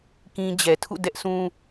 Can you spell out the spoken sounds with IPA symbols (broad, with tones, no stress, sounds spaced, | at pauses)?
k ĩ˦ d͡ʑ ɛ˨ tʰ ṵ˦˨ d ɛ˦ ʔ s ũ˦